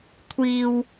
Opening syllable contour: low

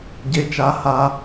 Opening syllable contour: low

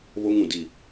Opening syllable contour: high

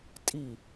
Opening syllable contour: falling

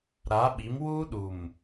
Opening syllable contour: rising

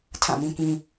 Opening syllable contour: falling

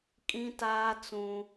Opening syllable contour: high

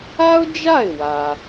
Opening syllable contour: high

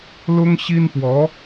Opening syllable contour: high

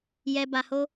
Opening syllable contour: low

